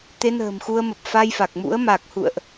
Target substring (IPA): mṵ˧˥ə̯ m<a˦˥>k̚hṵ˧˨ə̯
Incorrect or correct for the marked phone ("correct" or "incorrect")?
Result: incorrect